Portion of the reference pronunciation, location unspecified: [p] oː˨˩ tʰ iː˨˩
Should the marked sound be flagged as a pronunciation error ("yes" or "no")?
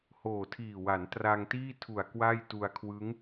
yes